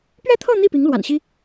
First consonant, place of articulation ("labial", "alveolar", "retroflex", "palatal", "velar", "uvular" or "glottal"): labial